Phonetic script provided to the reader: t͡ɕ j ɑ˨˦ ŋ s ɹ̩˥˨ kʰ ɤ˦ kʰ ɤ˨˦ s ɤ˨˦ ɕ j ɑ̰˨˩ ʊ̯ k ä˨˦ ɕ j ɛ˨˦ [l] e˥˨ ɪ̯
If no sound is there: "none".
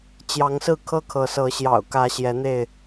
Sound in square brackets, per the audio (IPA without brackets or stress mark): n̪